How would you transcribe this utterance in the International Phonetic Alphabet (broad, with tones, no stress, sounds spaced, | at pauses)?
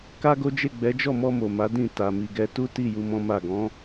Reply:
k a˦ ɡ o˦ d͡ʒ e˦˨ ɡ͡b ɛ˨˦ d͡ʒ ɔ˦˨ m ɔ˧ m o˨ m a˨˦ d ĩ˦˨ t a˨ m i˨ ɡ ɛ˧ t u˦ t i˦˨ j u˧ m ɔ̃˦ m a˦˨ ɡ ɔ̃˨˦